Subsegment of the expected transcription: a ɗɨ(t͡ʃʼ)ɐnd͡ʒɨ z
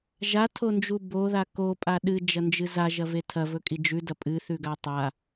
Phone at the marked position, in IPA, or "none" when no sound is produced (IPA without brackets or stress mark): d͡ʒ